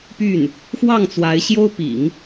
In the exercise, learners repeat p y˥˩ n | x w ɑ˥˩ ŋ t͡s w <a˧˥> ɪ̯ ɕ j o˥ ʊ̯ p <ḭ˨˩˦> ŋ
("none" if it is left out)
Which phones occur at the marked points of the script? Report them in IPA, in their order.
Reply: a˧˥, ḭ˨˩˦

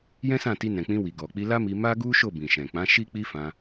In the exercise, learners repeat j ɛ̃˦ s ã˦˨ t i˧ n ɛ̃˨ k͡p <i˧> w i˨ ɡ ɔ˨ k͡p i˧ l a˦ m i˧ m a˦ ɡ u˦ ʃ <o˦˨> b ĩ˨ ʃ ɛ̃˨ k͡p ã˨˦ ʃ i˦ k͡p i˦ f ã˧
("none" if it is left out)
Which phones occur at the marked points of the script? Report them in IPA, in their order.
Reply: ĩ˧, o˦˨

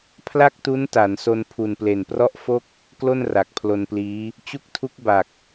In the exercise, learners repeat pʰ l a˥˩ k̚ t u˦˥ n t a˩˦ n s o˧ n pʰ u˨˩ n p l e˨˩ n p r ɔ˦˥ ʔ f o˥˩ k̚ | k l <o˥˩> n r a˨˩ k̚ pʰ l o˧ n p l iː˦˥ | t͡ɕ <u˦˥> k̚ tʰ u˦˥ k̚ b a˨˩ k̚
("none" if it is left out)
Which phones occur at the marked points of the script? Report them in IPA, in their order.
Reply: o˥˩, u˦˥

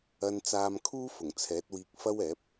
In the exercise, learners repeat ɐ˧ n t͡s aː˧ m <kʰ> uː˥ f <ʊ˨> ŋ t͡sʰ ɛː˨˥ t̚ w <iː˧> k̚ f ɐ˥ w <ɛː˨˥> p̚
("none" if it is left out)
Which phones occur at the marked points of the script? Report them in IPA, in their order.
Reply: kʰ, ʊ˨˩, iː˧, ɛː˨˥

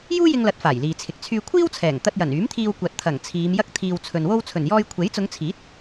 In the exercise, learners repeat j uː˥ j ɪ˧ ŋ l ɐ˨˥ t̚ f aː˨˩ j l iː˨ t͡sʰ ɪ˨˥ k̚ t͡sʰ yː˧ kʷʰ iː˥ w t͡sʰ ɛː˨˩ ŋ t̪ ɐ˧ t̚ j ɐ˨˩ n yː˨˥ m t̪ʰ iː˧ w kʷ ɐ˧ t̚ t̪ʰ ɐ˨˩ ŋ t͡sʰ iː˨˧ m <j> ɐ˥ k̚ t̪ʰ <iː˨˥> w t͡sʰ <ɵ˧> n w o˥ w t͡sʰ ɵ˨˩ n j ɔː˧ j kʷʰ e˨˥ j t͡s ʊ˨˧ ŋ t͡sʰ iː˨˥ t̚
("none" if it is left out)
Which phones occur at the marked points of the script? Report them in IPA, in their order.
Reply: j, iː˧, ɵ˧

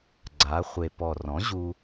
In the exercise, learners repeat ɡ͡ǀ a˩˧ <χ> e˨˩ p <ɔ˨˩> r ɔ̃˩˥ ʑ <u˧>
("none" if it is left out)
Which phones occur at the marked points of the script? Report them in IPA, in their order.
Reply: χʷ, ɔ˨˩, u˧

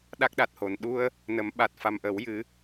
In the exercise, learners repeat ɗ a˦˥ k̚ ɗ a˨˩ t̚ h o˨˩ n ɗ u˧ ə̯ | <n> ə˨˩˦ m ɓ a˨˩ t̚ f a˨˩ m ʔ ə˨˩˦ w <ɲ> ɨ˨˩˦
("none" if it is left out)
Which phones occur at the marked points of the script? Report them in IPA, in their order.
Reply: n, j

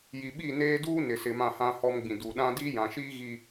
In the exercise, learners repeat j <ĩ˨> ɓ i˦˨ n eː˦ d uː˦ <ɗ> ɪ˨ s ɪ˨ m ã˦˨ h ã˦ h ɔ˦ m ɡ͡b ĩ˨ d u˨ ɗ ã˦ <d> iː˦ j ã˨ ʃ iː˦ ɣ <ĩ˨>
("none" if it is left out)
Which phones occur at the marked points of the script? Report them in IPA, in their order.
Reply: i˨, n, d, i˨

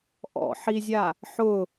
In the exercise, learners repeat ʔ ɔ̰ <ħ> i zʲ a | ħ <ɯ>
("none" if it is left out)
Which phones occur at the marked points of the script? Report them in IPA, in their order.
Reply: ħ, ʊ

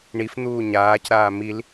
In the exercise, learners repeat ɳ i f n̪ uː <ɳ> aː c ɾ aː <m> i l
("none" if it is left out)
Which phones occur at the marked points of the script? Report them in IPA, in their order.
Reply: ɲ, m

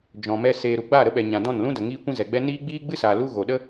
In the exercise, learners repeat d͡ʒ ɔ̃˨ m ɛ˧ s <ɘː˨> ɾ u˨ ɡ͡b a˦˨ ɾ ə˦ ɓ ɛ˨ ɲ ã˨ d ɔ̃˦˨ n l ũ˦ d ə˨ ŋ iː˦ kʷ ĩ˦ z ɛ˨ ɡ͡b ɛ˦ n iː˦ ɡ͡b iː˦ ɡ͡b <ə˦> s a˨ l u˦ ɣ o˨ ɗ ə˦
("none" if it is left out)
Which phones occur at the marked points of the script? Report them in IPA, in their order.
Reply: eː˨, ɨ˦

